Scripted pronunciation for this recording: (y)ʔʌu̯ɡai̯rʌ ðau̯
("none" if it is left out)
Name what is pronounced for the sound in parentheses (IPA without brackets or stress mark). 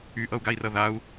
y